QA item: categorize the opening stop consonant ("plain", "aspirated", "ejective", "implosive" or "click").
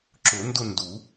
click